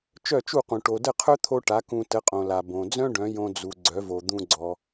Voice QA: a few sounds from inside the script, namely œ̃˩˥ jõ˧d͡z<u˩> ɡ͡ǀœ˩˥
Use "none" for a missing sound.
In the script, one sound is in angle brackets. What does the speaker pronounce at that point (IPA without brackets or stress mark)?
u˩